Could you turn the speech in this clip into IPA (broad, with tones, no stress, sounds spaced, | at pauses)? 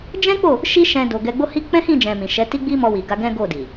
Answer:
d͡ʒ ɛ̃˦ k͡p o˦˨ | ʃ i˦ ʃ ɛ̃˧ d o˨ ɡ ɛ˧ ɡ͡b o˦ h i˦ k͡p ɛ̃˦ h ĩ˦˨ d͡ʒ ɛ̃˨ m ĩ˨ ʃ ɛ˨˦ t i˦ ɡ͡b i˦ m ɔ˧ w i˨ ɡ a˧ ɡ ɛ̃˦ ɡ o˦˨ d i˨